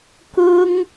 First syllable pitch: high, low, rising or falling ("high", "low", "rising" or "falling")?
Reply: high